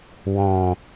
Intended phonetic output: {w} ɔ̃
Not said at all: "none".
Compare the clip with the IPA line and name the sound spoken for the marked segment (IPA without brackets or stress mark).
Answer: w